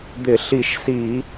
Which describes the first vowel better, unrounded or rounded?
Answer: unrounded